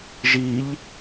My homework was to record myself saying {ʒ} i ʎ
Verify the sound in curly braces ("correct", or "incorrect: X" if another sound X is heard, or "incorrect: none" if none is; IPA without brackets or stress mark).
correct